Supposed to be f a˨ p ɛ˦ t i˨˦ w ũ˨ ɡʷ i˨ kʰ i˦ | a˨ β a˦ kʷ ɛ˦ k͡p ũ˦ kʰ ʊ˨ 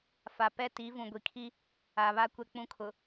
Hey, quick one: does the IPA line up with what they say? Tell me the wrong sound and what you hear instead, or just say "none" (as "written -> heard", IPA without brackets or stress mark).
w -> v